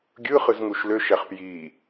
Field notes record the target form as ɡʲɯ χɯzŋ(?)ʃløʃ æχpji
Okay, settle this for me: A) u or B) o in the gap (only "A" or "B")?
A